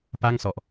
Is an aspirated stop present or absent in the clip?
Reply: absent